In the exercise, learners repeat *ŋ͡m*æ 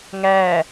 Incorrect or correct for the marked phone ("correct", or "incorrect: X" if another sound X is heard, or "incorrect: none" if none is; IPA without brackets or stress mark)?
incorrect: ŋ